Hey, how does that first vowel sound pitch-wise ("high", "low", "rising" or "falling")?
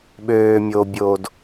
low